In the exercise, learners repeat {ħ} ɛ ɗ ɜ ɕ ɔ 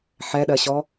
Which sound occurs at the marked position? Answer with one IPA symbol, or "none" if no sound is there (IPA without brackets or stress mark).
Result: ħ